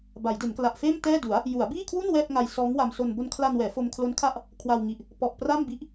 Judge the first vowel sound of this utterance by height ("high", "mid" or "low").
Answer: low